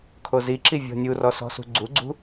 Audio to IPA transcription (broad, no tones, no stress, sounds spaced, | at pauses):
kʰ o z i ǁ i vʲ ɔ̤ nʲ u r ɔ s ɔ̤ s ṳ ɡ͡ǀ u ɡ͡ǀ ṳ